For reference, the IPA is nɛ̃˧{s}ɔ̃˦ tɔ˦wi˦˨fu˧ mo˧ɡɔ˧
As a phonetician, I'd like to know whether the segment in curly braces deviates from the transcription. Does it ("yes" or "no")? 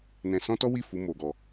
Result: no